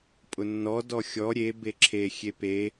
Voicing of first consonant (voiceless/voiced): voiceless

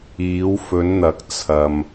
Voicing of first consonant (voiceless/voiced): voiced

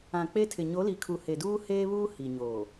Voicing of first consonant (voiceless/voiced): voiceless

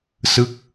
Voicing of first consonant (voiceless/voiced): voiceless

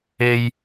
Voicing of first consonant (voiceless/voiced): voiced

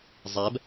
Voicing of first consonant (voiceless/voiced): voiced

